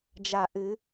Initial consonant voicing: voiced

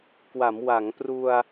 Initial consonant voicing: voiceless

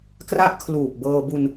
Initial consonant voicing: voiceless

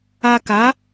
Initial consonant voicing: voiceless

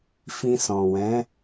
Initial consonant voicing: voiceless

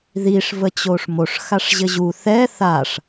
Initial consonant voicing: voiced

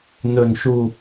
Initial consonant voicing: voiced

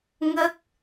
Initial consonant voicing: voiced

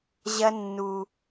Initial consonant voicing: voiced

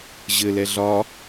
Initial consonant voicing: voiced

